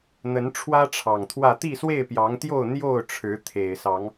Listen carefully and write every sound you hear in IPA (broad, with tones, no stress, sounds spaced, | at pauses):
n̪ ə˨˦ n ʈ͡ʂʰ w ä˦ ʈ͡ʂʰ ɑ˨˩ ŋ t̪ʰ w ä˥˨ t̪ i˥˨ s w e˥˨ ɪ̯ p j ɑ˨˦ ŋ t̪ j o˥˨ ʊ̯ n̪ j o˥˨ ʊ̯ ʈ͡ʂʰ ɻ̩˨˦ t̪ʰ e˨˩ ɪ̯ s ɑ˨˦ ŋ